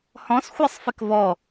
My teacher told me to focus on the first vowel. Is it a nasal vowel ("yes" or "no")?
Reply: yes